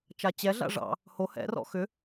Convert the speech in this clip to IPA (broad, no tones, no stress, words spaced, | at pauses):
t͡ʃat͡ɕɛɮa̰ ʐɑ̰ | ho hɛ̰rɔ̰ xʏ